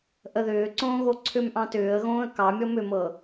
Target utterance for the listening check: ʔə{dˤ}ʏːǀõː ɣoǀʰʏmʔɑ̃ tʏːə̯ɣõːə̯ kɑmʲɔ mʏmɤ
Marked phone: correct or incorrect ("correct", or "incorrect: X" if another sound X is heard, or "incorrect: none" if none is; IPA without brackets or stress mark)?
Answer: incorrect: ð